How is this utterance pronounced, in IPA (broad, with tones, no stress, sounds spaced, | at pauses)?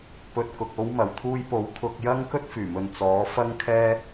p ɵ˨ t̚ k ʊ˨ k̚ o˨˧ w m ɐ˨˩ w t̪ʰ uː˧ j p o˨˥ w kʰ ʊ˧ k̚ j ɐ˥ ŋ k ɵ˥ t̚ f yː˨˩ m ɵ˨ n t͡s ɔː˨˥ f ɐ˥ ŋ kʰ ɛː˥